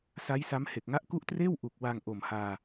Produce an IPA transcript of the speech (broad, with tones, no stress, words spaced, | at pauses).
sa˦˥jsa˦˥mhe˨˩k̚ ŋa˦˥ʔku˦˥ʔtreː˥˩w ʔu˨˩k̚ wa˧ŋʔo˨˩mhaː˧